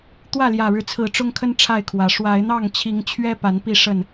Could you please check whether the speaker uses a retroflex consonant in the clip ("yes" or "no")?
yes